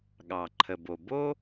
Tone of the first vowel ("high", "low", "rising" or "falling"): low